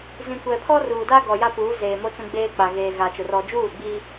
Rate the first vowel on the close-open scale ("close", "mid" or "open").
close